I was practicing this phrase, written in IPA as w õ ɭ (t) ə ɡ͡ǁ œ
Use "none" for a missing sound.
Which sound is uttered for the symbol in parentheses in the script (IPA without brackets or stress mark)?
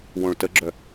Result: t